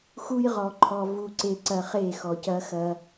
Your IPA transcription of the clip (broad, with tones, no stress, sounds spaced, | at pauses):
x u˦ j ʁ ɔ˨ ǃʰ ɔ˨ v u˨ ǀ e˨ ǀ ɐ˨ χ e˦˨ x ɔ˨ c ɐ˦ x ɐ˦